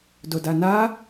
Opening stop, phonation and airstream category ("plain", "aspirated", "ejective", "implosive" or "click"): plain